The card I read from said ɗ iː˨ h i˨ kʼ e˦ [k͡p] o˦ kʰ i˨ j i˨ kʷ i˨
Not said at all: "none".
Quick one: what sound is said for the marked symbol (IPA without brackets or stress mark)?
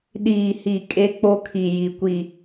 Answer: k͡p